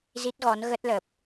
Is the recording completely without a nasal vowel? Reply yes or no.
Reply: yes